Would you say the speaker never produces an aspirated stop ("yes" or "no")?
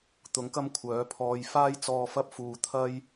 no